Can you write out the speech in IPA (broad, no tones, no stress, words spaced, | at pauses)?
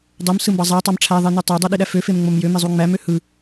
dˤomsɯmbɑ zˤætˤɑm ʈ͡ʂʰæðˤeny tˤodˤøɗiɗæ føfemŋ͡mom jømezˤu ŋ͡mæmø hɯ